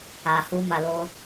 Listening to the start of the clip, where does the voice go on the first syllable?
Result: low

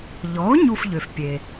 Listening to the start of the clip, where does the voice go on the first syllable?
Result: rising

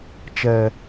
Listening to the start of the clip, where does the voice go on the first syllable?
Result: high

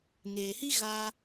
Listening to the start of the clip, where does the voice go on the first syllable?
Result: low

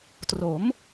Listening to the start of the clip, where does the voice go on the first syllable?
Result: rising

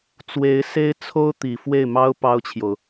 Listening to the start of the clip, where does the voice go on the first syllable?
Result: rising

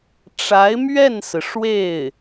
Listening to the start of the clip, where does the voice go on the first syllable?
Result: rising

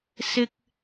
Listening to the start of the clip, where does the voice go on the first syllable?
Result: high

